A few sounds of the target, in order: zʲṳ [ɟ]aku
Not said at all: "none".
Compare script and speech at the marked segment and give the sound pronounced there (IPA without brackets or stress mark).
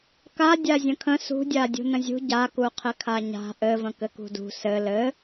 ɟ